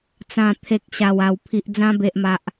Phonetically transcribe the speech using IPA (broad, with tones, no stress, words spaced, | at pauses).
t͡sã˨˩ t̪ʰe˨k̚ ɕa˨˩wa˨˩w pʰi˨ʔd͡zã˧ be˨ʔma˨ʔ